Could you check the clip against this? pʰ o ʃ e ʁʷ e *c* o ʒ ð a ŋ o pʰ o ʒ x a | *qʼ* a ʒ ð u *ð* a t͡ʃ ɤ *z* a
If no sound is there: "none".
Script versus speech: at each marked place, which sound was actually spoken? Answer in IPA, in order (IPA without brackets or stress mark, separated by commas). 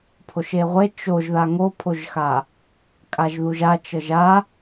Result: t͡ʃ, kʼ, ʒ, ʒ